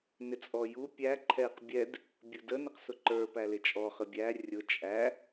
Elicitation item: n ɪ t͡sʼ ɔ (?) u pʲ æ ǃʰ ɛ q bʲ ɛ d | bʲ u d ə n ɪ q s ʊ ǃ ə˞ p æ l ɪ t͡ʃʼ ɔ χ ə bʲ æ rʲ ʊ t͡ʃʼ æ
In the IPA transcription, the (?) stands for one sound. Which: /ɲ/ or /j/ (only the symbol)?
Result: j